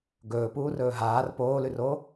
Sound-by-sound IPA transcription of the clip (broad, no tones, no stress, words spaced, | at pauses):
ɡɵːpuːrɵː ɦaːr poːlʉroː